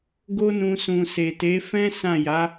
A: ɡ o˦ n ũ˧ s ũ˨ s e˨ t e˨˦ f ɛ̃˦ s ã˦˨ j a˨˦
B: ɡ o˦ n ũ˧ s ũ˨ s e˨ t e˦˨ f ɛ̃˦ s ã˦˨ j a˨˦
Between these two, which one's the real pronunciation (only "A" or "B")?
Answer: A